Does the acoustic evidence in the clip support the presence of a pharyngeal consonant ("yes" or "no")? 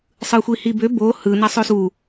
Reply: no